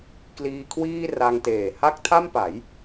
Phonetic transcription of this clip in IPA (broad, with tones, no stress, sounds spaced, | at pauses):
k l iː˧ kʰ w iː˥˩ r a˧ ŋ t eː˨˩ h a˥˩ k̚ tʰ a˥˩ m p a˩˦ j